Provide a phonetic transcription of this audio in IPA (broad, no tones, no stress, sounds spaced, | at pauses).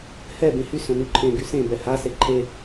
h ɛ b ẽ h y s œ̃ n y ǃʰ ẽ ɡ y s ẽ b ɛ h a s e ǃʰ e